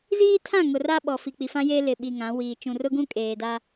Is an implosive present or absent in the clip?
present